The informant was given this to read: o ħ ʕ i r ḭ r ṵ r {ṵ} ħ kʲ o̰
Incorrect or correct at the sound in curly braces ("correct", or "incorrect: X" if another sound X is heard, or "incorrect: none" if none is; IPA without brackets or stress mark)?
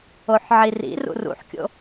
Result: correct